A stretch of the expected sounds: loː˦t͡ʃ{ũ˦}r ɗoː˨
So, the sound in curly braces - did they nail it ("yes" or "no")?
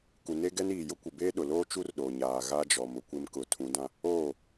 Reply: no